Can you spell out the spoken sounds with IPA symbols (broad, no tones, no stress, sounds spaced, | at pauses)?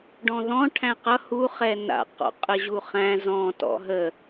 ɖ ɔ̃ ð ɔ̃ ʈʰ æ̃ q ʌ h u χ ɛ n a̰ q ɔ̰ qʼ ə ʑ u χ æ̃ z ɔ̃ t ɔ̰ ɦ ə